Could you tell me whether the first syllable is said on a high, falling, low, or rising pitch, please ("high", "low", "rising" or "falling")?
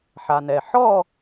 low